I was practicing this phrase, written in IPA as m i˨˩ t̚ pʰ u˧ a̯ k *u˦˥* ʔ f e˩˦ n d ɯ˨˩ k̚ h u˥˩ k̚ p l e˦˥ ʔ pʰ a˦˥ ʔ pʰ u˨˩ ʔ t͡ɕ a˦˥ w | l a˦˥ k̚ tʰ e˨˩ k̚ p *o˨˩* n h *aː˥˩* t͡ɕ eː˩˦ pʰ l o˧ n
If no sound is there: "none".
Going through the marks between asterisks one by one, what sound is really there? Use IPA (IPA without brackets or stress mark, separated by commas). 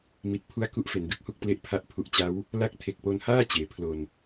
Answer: u˦˥, o˧, aː˥˩